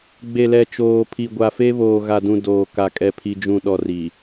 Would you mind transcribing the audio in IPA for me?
ɡ͡b e˨ l ɛ˨ t͡ʃ oː˨ pʰ i˨ ɡʷ a˨ f e˦ β oː˨ ɣ a˨ d ũ˨ d oː˨ k a˨ kʼ ɛ˨ pʰ i˨ d͡ʒ ũ˨ ɗ ɔ˨ r i˨

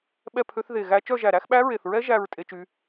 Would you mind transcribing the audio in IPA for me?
ɓ ɛ˥˧ pʰ ø˦˥ θ ð e˧˩ ɣ æ˦˥ t͡ʃ œ˥˧ ʒ æ˧˩ ɾ æ˦˥ x ɓ æ˦˥ ɹ e˧˩ θ ɹ ɛ˦˥ ʒ æ˥˧ ɹ tʼ e˦˥ t͡ʃ y˦˥

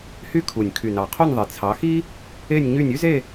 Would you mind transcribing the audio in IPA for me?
h y˥˧ kʰ u˨˩ nʲ kʰ y˨˩ n ɑ˨˩ qʰ o˥˧ nʲ ðˤ i˨˩ t͡sʰ ɑ˨˦ x i˥ | e˥˧ nʲ ɲ y˥˧ nʲ y˥ z e˥˧

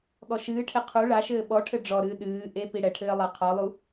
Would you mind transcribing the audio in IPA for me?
ɠ ɔ ʃ ɨː ʈʰ e qʰ u ɭ a ʃ ɘː ɓ ɔ ʈʰ ɘ ɖ͡ʐ ɔ ɾ ɨː ɗ ɨː ʔ e p i ɽ ɛ ʈʰ ɘː lˠ a qʰ ɔ lˠ u

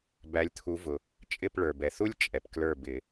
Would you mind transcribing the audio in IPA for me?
b æ˨˦ lʲ t̪ʰ u˨˦ v ʊ˩ | t͡ʃʼ ɪ˦˨ p ɭ ə˞˩ b ɛ˩ θ u˥ lʲ t͡ʃʼ ɛ˩ p k l ə˞˦˨ b ɪ˨˩˦

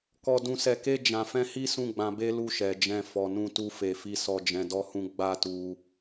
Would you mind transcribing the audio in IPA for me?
k ɔ˨ d ũ˨ s ɛ˨ k e˧ d͡ʒ ã˨ f ɛ̃˧ h i˦ s ũ˦˨ ɡ͡b ã˧ b e˦ l u˦˨ ʃ ɛ˨ d͡ʒ ɛ̃˧ f ɔ˨ n ũ˧ t u˧ f e˨ f i˧ s ɔ˨ d͡ʒ ɛ̃˨ d ɔ˧ h ũ˧ ɡ͡b a˦ t u˧

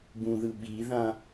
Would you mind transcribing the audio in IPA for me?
b ũ ð ɯ ɓ i ð ã

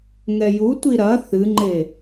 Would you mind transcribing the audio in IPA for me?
ŋ ɛ j u tʷ i ɾ ɐ θ ɨ ŋ͡ǃ e

